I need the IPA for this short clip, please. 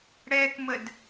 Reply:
ɽ ɛ k m ə d

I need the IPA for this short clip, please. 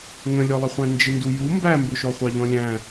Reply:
ŋ ə̃ lʲ ɔ lˠ ə χʷ æ̃ n d͡ʒ ɪ n d u j u m b æ m b ʊ ʃ ɔ χʷ ɑ ʎ ɔ̃ lʲ æ̃

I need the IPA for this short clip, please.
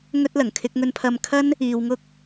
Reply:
ŋ ɵ˥ t̚ l ɐ˨˩ ŋ kʰ ɪ˧ k̚ ŋ ɵ˧ n pʰ ɐ˧ m kʰ ɐ˥ n | iː˧ w ŋ ʊ˥ k̚

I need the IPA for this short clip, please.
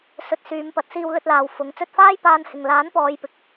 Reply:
s ɵ˧ t̚ s yː˨˧ m p ɐ˨˥ t̚ s iː˧ w l ɵ˧ t̚ l aː˨ w f ʊ˨˥ ŋ t͡s ɵ˧ t̚ f aː˥ j p aː˧ n h ɪ˨ ŋ l aː˨˥ n p ɔː˨˧ j p ɪ˨ k̚

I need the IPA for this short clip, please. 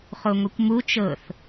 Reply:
χ o ŋʷ i kʷ m u t͡ʃ ɤ θ

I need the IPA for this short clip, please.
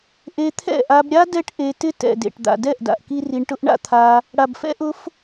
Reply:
ʔ e˧ t̪ʰ ɛ̰˦˨ ʔ a˧ b ɾʲ a˦ d ɛ˦ ʈ ʔ e˧ t ɪ˦ t ɛ̰˨ d ḛ˨ ʈ d̪ a̰˨ d ɛ˦˨ ʔ d a̰˨ ʔ k i˦ r i˧ ɳ ʈ ʊ˦ ʔ ɳ a̰˦ t̪ʰ a˧ | ɽ a˨ b f ɛ̰˦ ʔ ʊ˧ f

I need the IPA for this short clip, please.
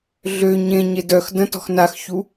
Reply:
ɮ ø ɲ ẽ ɲ e d œ x d ə̃ t ɔ̤ x n a x ç u

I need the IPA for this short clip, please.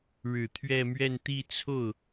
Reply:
ɻ ɻ̩˨˩ t̪ʰ ɥ ɛ˥˧ m ɥ ɛ˥˧ n t̪ i˥˧ t͡sʰ o˥˩ ʊ̯

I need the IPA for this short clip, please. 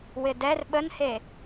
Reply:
w ɪ d ɛ r ɓ ə n h e

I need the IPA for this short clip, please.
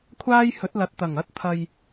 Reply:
kʷʰ aː˥ j h ɵ˨˥ t̚ l ɐ˨ t̚ t̪ ɐ˨˩ ŋ ɐ˧ t̚ t̪ʰ ɐ˨ j

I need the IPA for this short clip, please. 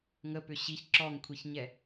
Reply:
ŋ ə p ʏ ɕ i ç ǁ ɔ ŋ kʷʰ i ç ɲ ɛ

